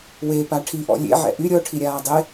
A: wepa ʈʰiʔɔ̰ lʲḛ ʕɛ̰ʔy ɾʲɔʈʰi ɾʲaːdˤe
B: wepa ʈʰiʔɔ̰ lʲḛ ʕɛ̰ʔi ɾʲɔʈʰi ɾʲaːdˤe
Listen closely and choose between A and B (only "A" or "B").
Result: A